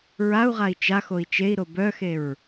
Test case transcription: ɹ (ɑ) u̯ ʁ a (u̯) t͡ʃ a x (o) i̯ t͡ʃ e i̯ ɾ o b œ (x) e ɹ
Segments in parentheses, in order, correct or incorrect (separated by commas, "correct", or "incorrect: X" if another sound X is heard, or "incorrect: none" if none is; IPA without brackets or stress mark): incorrect: a, incorrect: i̯, correct, correct